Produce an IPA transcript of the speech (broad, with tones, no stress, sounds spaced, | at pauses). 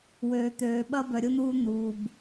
w øː˨ t̪ øː˨ ɓ ɐ˦ b œ˨ ɾʲ ʊ˦ n̪ uː˦ n̪ uː˨ b